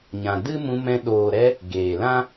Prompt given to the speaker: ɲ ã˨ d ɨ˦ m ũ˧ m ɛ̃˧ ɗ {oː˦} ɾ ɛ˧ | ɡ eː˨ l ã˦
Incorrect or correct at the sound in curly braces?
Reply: incorrect: oː˨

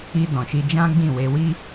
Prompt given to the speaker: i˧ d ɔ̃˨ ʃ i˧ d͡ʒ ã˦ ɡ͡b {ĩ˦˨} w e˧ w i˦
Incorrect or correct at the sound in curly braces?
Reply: correct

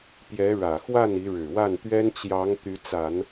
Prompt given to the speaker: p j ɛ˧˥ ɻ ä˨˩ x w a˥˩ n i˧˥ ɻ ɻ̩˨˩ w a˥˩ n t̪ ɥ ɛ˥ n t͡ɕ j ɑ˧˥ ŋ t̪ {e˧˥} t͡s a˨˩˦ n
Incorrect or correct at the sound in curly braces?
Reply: incorrect: y˧˥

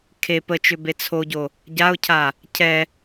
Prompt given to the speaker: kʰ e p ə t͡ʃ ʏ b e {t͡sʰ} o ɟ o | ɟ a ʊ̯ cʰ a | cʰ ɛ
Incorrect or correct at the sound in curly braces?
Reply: correct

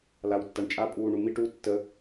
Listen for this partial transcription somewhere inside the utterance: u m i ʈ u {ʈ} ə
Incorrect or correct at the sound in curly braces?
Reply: incorrect: tː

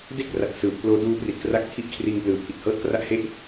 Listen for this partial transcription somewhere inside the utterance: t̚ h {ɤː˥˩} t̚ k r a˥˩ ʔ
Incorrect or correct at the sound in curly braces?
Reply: correct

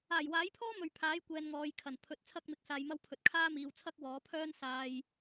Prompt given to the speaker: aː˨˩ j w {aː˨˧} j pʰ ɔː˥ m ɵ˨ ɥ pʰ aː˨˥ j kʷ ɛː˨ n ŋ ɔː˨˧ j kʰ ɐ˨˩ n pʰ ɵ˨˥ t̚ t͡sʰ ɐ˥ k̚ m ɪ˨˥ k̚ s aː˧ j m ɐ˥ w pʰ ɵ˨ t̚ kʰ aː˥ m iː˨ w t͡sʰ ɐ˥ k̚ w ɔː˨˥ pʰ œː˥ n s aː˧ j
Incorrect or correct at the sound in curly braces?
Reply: incorrect: aː˨˥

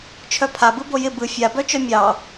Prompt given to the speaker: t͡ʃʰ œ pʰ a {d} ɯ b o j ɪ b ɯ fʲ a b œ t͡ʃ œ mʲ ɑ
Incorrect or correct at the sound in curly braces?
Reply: incorrect: b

